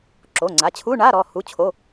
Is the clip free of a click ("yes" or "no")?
no